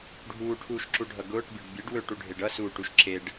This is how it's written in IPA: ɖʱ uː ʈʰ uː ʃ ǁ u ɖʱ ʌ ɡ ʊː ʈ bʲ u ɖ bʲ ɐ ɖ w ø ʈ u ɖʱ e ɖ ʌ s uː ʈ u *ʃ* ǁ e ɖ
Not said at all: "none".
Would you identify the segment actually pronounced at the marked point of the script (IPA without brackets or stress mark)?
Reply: ʃ